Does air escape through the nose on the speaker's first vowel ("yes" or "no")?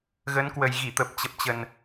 no